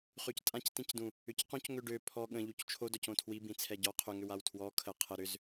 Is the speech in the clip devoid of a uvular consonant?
no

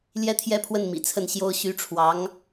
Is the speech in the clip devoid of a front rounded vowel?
no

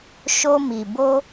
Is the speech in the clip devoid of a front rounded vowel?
yes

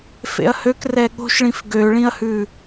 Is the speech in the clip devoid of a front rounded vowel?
no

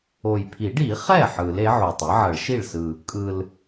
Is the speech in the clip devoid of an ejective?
no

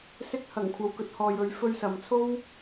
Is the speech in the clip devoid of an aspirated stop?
no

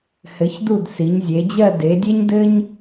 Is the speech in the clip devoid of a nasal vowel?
yes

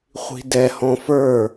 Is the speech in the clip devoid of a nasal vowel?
no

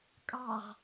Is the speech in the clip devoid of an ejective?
no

